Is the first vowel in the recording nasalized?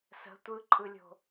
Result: no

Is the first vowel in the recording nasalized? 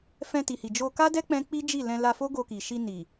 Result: yes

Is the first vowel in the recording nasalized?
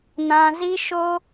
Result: yes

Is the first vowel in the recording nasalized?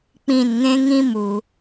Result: yes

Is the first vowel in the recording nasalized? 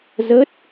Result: no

